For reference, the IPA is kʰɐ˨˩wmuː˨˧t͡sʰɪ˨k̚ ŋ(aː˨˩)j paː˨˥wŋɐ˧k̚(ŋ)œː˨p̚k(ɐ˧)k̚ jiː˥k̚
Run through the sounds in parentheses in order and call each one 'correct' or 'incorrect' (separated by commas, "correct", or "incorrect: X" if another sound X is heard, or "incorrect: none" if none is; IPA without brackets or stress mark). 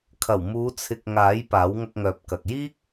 incorrect: aː˨˥, correct, incorrect: ɐ˨